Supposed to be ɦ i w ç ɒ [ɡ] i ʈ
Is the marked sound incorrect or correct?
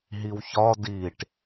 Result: incorrect